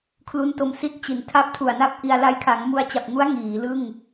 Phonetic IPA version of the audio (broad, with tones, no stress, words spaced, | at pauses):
kʰlu˦˥nto˧m si˦˥t̚t͡ɕi˩˦ntʰa˦˥p̚ tʰu˨˩a̯na˥˩p̚ʔi˧a̯ la˧jkʰa˩˦ŋmu˧a̯t͡ɕa˨˩p̚ ŋu˦˥a̯ ŋiː˩˦lɯ˥˩ŋ